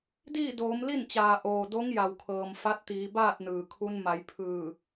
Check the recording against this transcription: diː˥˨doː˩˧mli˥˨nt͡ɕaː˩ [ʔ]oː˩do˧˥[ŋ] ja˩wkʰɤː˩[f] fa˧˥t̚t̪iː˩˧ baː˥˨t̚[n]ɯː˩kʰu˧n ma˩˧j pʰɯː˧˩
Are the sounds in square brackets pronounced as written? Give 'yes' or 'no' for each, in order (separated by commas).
yes, yes, no, yes